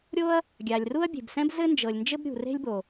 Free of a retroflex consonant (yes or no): yes